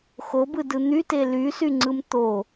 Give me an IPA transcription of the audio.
x o b ɯ d ɯ n̪ y t e l y s y ŋ͡ǀ ɯ m t̪ o

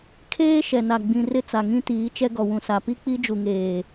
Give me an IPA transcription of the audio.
kʰ eː˦ ʃ ɛ˨ n a˨ ɡ͡b ĩ˨ r ɪ˦ t͡s a˨ ŋ ĩ˦ t iː˨˦ t͡ʃ ɛ˦ ɡ ɔ˨ w ũ˨ s a˨ p i˦ k͡p i˦ d͡ʒ u˨ ŋ eː˨

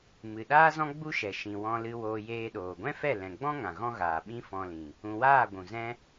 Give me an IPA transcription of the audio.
m ɨ˨ ɗ aː˦ z ɔ̃˦ ɡ͡b u˦ ʃ ɛ˨ ʃ ĩ˨ w ɔ̃˧ l ɨ˧ w oː˧ j eː˧ ɗ oː˨ ɡʷ ɛ̃˦ f ɛ˦˨ l ɛ̃˨ ɡ͡b ɔ̃˦ ŋ ã˨ ɣ ɔ̃˦ ɣ aː˨ ɓ ĩ˦ f ɔ̃˧ l ĩ˨ | ũ˨ w aː˦˨ ɡʷ ũ˨ z ɛ̃˦

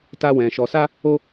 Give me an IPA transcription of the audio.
t a˦ w ɛ̃˧ ʃ ɔ˧ s a˦ | o˦

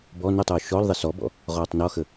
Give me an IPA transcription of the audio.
b ɔ n ɵ tˤ uː ʃ ɔ l ðˤ ə s ɔ b ɔ̰ | ʁ ɔː tˤ n ɔ x ə

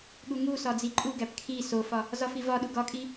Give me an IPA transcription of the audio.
ɠ u ŋ u s ɒ d͡z i ǃʼ u ɡ æ p kʰ i s o f ɒ | z ɒ f i v ɒ ɗ u ɡ ɒ kʼ i

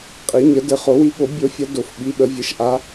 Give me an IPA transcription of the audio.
qʼ i˨˩˦ ɲ ə˨˩˦ d ɘ˨˩˦ χ o˨˩˦ w i˨˦ ɠ o˨˩˦ bʲ o˨˦ fʲ ɐ˨˦ d o˨˩˦ f ɓ i˨˦ ɓ ə˨˩˦ vʲ ɘ˨˦ ʃ ʔ a˨˦

